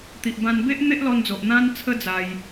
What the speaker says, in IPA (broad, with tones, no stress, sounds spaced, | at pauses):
t̪ i˨ ʔ b ã˧ n b e˦ ʔ n̪ e˦ ʔ l ɔ˧ n d͡z o˨ ʔ n̪ ã˧ n t͡sʰ ə˧ d͡z a˧ j